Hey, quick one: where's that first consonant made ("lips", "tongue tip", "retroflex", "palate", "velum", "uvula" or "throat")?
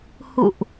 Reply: throat